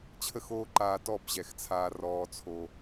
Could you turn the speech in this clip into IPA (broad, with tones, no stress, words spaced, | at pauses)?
t͡ɕʰə˦xoː˦ ǃaː˧tɔ˦˨b ʑɛ˨xt͡sʰaː˧ rɔː˧t͡sʰo˧